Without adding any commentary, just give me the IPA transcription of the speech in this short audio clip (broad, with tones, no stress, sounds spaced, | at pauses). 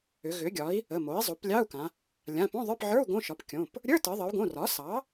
ʏ˩˧ ɣ ʏ˩˥ ɡʲ ɒ˩˥ i̯ | ə˩˧˩ m o˩˥ i̯ zˤ o˩˥ p lʲ ɑ˧˥˧ u̯ k ã˩˧ | lʲ ã˩˧˩ p õ˧˥˧ ðˤ ə˞˧˥˧ p ʕ ə˞˧˥˧ u̯ ɡ õ˧˥˧ ʃ ɒ˩˥ p kʲ õ˩˧˩ p | ɾʲ ə˞˧˥˧ t ə˩˧ ðˤ ə˩˧ u̯ ɡ õ˩˧˩ r ɒ˩˥ s ɑ˩˥